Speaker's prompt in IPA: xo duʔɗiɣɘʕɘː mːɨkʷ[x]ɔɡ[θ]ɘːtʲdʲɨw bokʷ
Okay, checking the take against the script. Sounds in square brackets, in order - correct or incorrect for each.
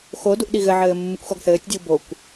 correct, correct

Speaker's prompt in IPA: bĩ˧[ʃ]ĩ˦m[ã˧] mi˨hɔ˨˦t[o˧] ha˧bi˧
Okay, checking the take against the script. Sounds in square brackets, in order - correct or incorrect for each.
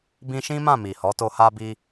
correct, incorrect: ã˦˨, correct

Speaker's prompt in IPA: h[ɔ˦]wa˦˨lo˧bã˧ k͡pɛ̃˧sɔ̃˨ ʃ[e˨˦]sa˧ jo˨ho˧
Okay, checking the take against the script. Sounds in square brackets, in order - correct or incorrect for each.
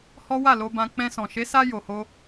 correct, correct

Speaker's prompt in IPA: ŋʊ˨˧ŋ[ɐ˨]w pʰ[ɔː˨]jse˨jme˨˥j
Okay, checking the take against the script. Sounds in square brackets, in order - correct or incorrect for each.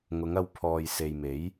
incorrect: ɐ˧, correct

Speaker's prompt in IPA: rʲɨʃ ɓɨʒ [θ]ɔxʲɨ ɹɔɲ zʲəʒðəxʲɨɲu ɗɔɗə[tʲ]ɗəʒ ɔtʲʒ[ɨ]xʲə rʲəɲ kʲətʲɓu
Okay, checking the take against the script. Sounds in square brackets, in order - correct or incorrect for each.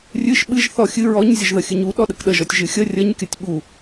correct, incorrect: k, correct

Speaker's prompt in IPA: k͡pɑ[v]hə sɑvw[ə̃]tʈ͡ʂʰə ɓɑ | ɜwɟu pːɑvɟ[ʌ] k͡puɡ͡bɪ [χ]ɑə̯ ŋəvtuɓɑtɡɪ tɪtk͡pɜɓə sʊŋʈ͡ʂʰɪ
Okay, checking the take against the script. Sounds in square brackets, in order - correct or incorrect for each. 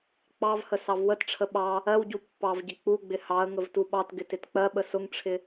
correct, incorrect: ə, incorrect: ə, incorrect: h

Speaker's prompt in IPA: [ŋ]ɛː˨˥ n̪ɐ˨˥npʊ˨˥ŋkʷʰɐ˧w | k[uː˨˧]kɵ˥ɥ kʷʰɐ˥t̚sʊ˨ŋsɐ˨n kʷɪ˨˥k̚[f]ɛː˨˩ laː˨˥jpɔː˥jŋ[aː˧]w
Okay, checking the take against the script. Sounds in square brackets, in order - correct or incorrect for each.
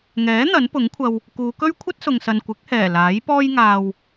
correct, correct, incorrect: h, correct

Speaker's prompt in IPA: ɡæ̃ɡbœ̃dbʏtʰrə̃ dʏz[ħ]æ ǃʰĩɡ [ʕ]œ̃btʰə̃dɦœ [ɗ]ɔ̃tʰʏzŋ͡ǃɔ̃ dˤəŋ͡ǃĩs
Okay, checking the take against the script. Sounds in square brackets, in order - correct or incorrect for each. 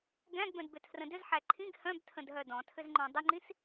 correct, incorrect: h, incorrect: d

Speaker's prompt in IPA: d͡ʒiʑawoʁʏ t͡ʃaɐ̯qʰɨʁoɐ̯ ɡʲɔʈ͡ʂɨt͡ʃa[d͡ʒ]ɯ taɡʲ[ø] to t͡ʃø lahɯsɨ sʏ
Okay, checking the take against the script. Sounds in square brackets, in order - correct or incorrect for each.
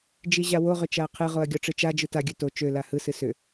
correct, correct

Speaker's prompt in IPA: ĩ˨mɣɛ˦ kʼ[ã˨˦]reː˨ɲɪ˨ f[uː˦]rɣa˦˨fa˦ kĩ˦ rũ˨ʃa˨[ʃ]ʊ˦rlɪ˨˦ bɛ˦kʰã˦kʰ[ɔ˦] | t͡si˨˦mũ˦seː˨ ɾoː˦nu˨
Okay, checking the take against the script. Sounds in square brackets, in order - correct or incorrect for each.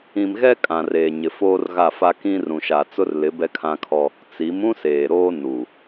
incorrect: ã˨, incorrect: oː˦, incorrect: t͡s, correct

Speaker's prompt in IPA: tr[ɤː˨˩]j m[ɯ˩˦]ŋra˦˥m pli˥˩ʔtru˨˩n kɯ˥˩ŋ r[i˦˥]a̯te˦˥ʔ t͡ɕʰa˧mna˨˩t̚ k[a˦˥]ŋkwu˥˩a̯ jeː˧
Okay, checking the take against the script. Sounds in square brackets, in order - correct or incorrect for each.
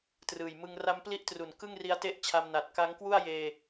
incorrect: ɯː˨˩, incorrect: ɯ˧, correct, correct

